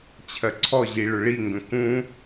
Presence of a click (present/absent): present